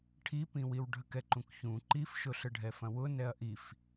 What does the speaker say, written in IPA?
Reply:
ʈʰipĩwiw ɖʱəkɛǃũkçũ ǃifʃʊɬə ɖʱɛfɐ̃wʊ nɛɐ̯ʔif

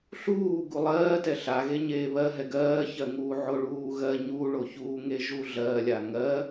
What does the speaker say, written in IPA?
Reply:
ɬuː ɡulˠɜːtɛ ɬa ɣeɲeːβɜɦɛ ɡɜːçɜŋuː ʕoɭuːɣɜ ɲuɭoçuː ŋeʒuɮɜlʲa ŋɜ

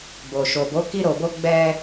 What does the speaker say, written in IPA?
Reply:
bo˨ʃo˨bo˨˦ ki˧ɾo˨bo˧ ɡ͡bɛ˧

